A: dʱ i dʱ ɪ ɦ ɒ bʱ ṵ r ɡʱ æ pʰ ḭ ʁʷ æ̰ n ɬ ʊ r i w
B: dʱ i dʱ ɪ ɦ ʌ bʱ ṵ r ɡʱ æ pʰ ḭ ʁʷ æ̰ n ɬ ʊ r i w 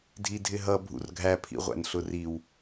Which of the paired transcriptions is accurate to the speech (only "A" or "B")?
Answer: B